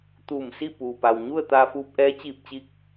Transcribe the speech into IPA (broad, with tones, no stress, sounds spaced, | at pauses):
t̪ uː˧˩ m s i˥˨ p uː˩ p a˩ w ɲ u˥˨ ə̯ t̪ aː˧ f uː˧ p̚ ʔ ɛː˧˥ t͡ɕ iː˧˩ p̚ t͡ɕ i˧ k̚